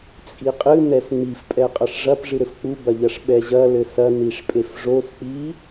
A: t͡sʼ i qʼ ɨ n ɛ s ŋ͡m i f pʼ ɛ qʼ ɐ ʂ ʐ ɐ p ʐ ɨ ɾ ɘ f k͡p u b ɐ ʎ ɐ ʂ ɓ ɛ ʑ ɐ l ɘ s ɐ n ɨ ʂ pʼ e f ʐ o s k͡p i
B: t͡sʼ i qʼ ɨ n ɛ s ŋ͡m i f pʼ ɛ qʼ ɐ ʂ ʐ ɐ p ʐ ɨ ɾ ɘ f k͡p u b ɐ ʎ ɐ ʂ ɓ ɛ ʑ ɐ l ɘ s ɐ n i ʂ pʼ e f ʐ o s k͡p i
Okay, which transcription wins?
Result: B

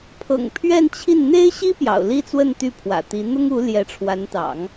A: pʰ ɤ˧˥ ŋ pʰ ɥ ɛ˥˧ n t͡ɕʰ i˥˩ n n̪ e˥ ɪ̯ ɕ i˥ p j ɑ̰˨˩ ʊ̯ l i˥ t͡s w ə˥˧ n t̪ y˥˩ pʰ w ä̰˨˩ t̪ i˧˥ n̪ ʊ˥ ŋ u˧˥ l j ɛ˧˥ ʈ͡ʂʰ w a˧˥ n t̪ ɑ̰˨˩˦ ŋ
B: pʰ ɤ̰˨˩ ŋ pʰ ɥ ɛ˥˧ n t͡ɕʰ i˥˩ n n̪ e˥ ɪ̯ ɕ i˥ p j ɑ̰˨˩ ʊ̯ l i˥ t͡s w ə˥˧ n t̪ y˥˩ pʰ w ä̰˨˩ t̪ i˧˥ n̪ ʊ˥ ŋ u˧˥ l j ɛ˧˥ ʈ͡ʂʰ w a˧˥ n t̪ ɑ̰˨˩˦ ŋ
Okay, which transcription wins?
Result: B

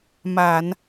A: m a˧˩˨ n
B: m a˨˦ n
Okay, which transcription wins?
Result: A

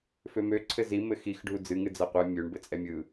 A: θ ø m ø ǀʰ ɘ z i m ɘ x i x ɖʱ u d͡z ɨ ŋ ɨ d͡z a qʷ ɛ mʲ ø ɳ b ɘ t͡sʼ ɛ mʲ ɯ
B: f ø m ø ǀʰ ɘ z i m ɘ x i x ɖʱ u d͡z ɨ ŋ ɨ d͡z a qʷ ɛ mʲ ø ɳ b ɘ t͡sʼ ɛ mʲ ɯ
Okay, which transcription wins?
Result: B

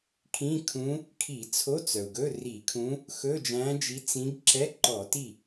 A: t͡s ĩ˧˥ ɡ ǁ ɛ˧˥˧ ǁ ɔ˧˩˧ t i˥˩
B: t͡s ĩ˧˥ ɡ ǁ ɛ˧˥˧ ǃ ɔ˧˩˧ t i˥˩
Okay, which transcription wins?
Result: B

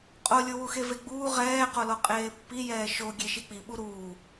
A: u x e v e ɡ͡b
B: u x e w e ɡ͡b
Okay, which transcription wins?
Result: A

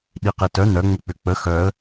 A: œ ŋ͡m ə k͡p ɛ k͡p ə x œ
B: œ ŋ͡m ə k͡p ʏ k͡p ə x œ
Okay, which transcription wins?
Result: B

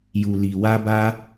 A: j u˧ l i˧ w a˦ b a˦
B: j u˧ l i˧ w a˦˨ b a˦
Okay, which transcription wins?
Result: A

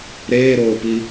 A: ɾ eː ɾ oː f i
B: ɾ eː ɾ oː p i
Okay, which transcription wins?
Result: B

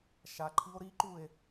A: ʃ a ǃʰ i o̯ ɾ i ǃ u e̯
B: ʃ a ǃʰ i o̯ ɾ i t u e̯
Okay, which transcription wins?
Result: A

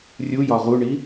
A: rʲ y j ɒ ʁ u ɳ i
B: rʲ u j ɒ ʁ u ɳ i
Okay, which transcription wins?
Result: B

